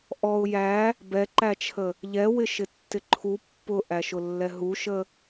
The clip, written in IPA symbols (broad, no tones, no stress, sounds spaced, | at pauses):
ʔ ɔ ʊ̯ j æ | b ɛ ǃ æ t͡ʃʰ ə | ʎ ɛ w ɪ ʃ ɪ tː ɪ ǃʰ u pː ʊ ʔ æ ʃ ʊ lː ɛ ɦ u ʃ ə